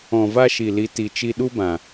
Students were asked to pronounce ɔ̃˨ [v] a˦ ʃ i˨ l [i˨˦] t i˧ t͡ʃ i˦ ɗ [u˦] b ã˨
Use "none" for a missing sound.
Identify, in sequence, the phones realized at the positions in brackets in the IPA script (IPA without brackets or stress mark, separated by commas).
v, i˨˦, u˦